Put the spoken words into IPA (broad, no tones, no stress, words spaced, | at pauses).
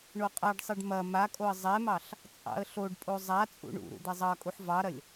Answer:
ɳoqʼaɖsˤɛɖ mɐ makʼoə̯ zˤɛmɑɬ | t͡sʼɑ̰ə̯ɬoɖpʼo zˤa t͡sʼṵɳṵɾṵ d̪ɛzˤɑkʼuħ vɑɾɐlʲ